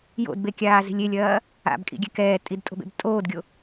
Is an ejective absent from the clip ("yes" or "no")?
no